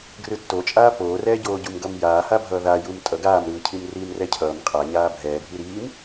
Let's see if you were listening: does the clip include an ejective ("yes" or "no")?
yes